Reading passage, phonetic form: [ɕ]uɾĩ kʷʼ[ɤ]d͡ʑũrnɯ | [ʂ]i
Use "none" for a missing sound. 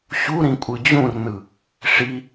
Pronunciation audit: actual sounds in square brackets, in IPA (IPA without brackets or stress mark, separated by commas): ɕ, ɯ, ʂ